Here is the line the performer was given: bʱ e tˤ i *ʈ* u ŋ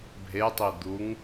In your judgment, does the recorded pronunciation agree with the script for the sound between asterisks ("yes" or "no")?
no